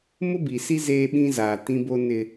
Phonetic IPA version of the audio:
m ʊ˦ b i˨ s i˦ z eː˦ ɓ ĩ˦ z aː˨ t ĩ˦ b o˦ n ɪ˦

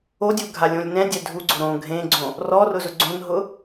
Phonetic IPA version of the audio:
o dʲ u ɡʱ a lʲ õ lʲ n ɛ̃ dʲ ɛ dʱ u ɡ͡ǀ ʊ ɾ õ ɡʱ ẽ ɡ͡ǀ õ | r ɔ r ʊ z ʊ ɡ͡ǀ õ n ɦ ʊ

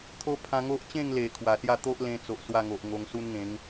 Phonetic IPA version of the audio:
t̪ʰ o˦ pʰ ã˧ ŋ o˦ ʔ t͡ɕ ẽ˥˧ ŋ l e˨˩ kʰ w a˨˩ s j a˥˧ t̪ o˦ ʔ l ẽ˧ t͡s o˨ ʔ s w a˥˧ ŋ o˨ ʔ ŋ o˧ ŋ s u˦ n ŋ ẽ˨˦ ŋ

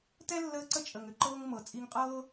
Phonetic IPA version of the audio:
t ɛ˥ lː əː˦ ǀ ə˥ t͡ʃʼ ə˨ ŋ ʏ˨ ǃ ɤː˥ ŋ m ɤ˨ t͡sʼ i˦ ŋ qʼ ɤː˥

